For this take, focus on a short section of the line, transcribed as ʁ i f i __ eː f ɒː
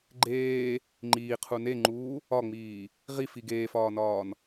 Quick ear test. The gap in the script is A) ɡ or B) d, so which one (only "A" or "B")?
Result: A